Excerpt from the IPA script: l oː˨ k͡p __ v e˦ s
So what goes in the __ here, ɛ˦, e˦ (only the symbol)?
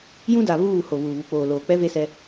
ɛ˦